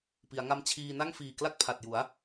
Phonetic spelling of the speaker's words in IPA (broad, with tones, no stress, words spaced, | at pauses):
pi˩˦a̯ŋa˦˥m t͡ɕʰiː˧na˥˩ŋ fiː˨˩kla˥˩k̚ pʰa˨˩t̚ju˩˦a̯